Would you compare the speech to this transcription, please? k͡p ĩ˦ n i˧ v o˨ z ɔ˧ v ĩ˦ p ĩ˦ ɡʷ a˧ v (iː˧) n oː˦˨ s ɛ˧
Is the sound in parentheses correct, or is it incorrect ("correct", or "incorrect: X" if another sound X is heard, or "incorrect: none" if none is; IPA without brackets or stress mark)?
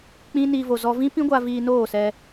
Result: correct